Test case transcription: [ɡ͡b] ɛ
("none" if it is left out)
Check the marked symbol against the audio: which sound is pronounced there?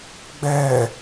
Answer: ɡ͡b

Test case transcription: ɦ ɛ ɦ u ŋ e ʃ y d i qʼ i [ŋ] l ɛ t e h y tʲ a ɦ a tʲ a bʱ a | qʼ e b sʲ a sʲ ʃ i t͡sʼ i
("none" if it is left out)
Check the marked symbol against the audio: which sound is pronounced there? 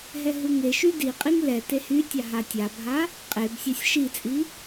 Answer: ŋ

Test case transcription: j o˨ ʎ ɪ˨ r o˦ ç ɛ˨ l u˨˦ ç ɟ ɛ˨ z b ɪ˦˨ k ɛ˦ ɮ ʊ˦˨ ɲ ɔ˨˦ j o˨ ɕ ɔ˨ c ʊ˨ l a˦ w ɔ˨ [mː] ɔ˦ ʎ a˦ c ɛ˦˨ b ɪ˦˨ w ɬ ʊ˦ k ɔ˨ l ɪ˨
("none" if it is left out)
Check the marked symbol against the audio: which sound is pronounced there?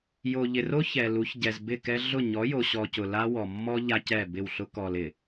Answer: mː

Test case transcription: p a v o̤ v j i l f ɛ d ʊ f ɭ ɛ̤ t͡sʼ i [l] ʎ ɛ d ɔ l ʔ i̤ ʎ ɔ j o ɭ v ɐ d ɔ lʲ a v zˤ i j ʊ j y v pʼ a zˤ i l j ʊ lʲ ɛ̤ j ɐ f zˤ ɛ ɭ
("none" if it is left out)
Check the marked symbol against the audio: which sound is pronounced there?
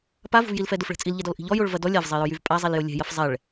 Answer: l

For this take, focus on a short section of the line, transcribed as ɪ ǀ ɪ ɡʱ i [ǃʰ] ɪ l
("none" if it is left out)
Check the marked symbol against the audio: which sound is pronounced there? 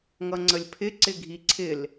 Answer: ǀʰ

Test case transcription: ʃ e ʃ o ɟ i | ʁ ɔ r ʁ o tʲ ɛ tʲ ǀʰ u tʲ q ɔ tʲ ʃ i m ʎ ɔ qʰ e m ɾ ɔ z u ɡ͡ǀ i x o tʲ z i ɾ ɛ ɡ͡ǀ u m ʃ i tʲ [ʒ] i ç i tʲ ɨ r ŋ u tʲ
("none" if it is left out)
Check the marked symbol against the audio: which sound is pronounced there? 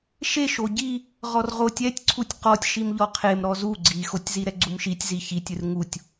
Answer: z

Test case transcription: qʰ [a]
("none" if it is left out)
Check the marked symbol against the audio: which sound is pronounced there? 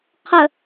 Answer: ə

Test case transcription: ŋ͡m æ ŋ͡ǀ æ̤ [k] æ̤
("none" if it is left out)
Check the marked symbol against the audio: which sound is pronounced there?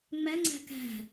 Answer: k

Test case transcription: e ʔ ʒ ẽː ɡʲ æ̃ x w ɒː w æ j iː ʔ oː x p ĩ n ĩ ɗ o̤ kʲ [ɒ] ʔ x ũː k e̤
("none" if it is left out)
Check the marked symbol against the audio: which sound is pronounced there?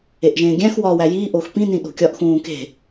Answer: ɒ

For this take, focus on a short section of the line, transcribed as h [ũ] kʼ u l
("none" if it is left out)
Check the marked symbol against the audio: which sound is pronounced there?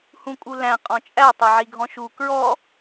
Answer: ũ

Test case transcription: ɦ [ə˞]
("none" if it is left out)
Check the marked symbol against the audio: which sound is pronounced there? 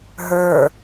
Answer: ə˞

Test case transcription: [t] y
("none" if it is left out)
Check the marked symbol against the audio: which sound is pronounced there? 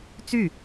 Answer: t͡s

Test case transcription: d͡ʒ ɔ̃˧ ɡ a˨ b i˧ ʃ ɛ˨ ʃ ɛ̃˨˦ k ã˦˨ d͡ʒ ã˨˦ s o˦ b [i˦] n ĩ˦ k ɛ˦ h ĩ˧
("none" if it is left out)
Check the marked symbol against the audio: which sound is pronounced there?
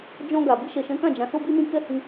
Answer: i˦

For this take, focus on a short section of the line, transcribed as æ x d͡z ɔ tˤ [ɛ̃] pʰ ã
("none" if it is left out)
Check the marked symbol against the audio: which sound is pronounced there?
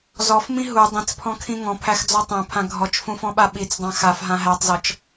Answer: æ̃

